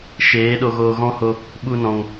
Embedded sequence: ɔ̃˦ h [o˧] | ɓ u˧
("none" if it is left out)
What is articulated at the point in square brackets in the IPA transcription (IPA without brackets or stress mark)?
o˧